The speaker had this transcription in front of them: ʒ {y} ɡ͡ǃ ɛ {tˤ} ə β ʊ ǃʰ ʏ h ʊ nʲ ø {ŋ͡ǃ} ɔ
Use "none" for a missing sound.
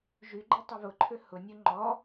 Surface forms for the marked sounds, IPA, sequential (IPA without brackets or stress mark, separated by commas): y, tˤ, ŋ͡ǃ